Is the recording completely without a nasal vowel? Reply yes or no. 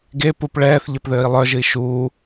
yes